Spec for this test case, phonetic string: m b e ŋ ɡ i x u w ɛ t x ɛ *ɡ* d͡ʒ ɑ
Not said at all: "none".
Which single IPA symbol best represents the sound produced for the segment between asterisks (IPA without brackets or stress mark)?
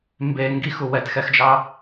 x